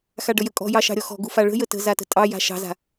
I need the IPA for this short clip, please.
x a ɖ ə j ə kʼ ɔ̤ j ɑ ʃ ɑ̤ ɾʲ ɔ x ɔ̤ ɡ u f a ɭ ə̤ j ə t ə̤ z a t ə̤ tʼ ɑ j a̤ ʃ ɑ̤ z a̤

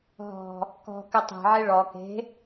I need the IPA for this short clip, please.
ɦ ɔ̤ | k ɔ̤ k ɨ tˤ e̤ ʕ e ɭ ɔ k e̤

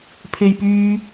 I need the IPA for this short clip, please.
pʰ e˨ j p yː˧

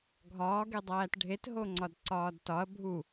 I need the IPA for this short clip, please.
ɡʱ ɒː ɡ e dˤ æː t ɖʱ e t ɦ o ŋ͡ǀ ɒ d ǀ ɒː d t ɒ ɐ̯ bʱ u

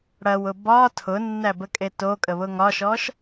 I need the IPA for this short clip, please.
ɽ ɐ w ʊ b ɒ tʰ ʊ nː æ b ə kʼ e t o kʼ ə β ʊ ŋ ɒ ʃ ɔ ʃ

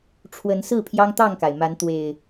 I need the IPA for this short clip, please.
ʈ͡ʂʰ w ə˨˦ n s ɹ̩˥˨ pʰ j ɑ˦ ŋ t̪ ɑ˥˨ ŋ k a˩ ɪ̯ m a˨˦ n t̪ w e˨˩ ɪ̯

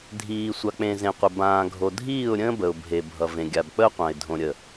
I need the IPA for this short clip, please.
dʱ iː˨ sʷ a˨ k͡p ẽ˨ z ẽ˨ qʷ ə˨ b ãː˨ ɡʱ o˨ dʱ iː˦˨ ʊ̯ ɾʲ ə̃ː˦ b ə˨ ʊ̯ bʱ e˨ bʱ ʌ˨ v ẽ˨ ɡʲ a˨ b k͡p ə˦ ʊ̯ qʷ ã˨ ɪ̯ dʱ õ˨ ɾʲ ə˨

